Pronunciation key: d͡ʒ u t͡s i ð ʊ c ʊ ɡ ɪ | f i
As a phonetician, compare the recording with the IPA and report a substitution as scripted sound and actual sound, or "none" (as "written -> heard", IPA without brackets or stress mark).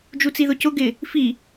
none